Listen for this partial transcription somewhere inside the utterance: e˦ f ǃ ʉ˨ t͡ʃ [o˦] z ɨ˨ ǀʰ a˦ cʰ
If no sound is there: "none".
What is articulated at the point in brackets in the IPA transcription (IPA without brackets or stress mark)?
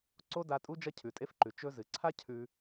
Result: ɵ˦